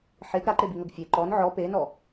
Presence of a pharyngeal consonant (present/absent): present